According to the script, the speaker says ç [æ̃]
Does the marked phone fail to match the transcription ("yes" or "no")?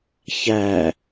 yes